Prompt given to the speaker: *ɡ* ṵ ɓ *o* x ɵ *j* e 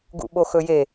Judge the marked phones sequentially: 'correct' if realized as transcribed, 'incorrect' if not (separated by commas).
correct, correct, correct